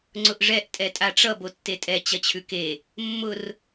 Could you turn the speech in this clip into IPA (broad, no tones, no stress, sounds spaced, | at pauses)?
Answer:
ŋ͡ǀ ʊ ʔ ʐ ɛ ʔ tʼ ɛ tʼ a ʈ͡ʂ ʌ b o tː e tʼ ɛ t͡ɕ ɐ t͡ɕʰ ʉ k e | mː ʊ r